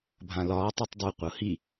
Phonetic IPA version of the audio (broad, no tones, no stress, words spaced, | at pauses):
bʱãlɒːtˤ itˤdˤɯ qʷɤhi